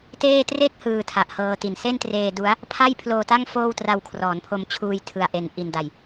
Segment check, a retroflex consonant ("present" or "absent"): absent